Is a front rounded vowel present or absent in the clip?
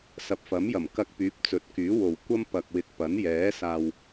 present